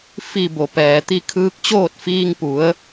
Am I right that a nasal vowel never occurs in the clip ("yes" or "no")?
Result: yes